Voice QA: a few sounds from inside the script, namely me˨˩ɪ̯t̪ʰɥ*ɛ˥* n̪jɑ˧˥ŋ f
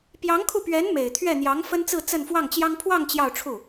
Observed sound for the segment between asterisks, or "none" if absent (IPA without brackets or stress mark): ɛ˥˩